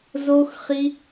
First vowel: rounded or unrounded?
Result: rounded